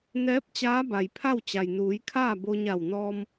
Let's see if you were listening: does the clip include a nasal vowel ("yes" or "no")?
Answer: no